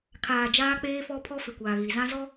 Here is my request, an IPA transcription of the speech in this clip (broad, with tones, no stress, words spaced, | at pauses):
kʰaː˨d͡ʒaː˦k͡peː˦fɔ˦ pʰɔ˦fɪ˨kʷaː˨ ɣi˨zã˦zɔ˦